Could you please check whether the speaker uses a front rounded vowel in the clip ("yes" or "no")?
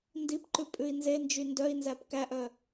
yes